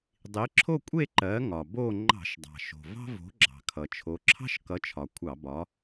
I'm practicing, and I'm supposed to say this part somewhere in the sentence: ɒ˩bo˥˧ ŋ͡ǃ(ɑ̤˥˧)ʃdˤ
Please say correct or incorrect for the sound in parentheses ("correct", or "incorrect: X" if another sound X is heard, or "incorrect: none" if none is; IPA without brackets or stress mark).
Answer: incorrect: ɑ̤˧˩˧